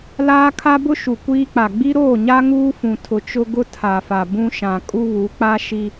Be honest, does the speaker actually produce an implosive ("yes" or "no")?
no